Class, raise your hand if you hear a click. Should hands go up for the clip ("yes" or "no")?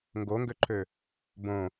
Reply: yes